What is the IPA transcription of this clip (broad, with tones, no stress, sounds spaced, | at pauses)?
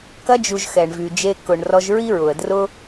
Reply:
k ɐ˧ d͡ʒ u˨ ʒ x ɛ˨ ɳ v y˨ d͡ʒ e˧ k ʊ˨ ɳ r ɔ˧ ʒ ɹ i˦ ɹ ʊ˨ ə̯ d r ʊ˦